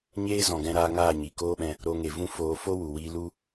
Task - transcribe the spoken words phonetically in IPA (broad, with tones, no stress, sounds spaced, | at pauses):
ɲ eː˦ z ɔ̃˨ ɡ ɛ̃˧ ɾ aː˧ ŋ aː˦˨ ɲ i˨ k oː˦ ɓ ɛ̃˧ | ɾ o˧ ŋ e˨ v ũ˦ f oː˧ f o˦ w u˨ w iː˧ l u˦